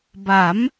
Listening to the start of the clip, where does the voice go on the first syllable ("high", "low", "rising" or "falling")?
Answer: rising